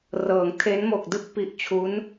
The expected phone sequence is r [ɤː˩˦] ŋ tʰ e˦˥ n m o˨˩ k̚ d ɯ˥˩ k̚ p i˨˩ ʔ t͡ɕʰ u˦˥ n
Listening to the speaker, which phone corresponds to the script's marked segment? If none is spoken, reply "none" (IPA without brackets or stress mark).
ɤː˩˦